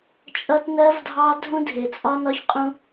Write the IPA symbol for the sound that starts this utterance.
t͡ʃʼ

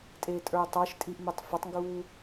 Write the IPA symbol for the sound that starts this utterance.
tʼ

